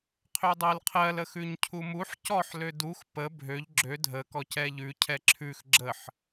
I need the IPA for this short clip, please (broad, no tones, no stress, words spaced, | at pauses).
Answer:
qʰødˤɛlqʰɜl əxʉɲcʰumuħ cɔħ lødux pə bʱøʎ ɡ͡ǁø dʱə kɔcɛʎʉ cʰɛǁʰʉx ɡ͡ǁəħ